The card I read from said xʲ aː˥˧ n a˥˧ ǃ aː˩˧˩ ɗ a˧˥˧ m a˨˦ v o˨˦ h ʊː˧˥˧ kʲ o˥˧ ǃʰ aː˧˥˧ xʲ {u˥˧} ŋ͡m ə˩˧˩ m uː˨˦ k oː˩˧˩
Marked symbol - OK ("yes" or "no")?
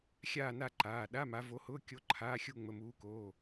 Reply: yes